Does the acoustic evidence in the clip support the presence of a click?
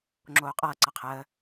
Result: yes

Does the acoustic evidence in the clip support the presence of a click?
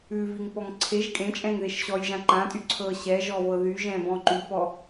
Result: yes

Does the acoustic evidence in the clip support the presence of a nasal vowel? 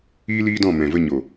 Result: yes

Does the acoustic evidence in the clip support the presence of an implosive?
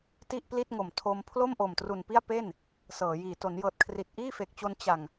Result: no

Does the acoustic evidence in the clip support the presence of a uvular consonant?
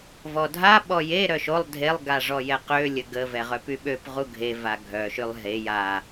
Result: yes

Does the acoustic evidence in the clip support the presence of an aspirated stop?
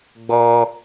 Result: no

